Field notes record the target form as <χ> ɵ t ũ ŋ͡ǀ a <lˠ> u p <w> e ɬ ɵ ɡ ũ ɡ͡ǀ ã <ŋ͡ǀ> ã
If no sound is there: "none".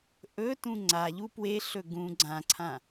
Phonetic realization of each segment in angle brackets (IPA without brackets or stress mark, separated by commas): ʔ, ʎ, w, ǀʰ